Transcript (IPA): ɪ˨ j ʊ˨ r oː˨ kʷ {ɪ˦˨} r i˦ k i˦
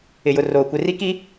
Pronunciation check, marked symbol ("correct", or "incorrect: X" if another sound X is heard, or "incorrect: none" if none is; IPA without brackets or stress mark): incorrect: ɪ˨